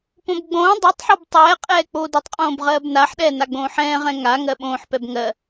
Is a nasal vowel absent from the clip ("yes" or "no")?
no